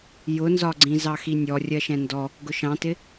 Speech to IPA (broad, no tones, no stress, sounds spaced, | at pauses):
j ʊ n z ɒ ɡ͡ǀ ĩ z ɑ x i nʲ ɔ rʲ ɜ ʃ ɛ̃ n d ɔ | ɡ ʊ ʃ ɑ̃ t ɪ